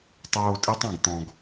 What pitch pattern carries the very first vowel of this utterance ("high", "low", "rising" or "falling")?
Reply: low